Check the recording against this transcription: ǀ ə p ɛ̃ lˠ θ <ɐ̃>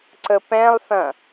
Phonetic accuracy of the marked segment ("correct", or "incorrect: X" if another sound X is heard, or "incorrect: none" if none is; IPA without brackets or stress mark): correct